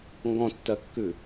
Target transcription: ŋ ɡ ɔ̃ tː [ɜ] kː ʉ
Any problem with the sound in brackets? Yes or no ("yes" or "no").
no